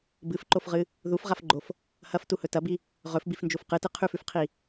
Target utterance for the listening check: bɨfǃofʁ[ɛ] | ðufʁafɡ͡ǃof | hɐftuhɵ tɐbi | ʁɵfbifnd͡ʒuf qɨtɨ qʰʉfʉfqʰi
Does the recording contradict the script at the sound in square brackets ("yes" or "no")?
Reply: yes